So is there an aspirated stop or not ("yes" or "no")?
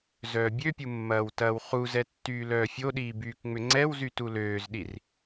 no